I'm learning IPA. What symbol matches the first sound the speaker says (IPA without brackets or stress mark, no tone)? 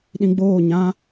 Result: ɗ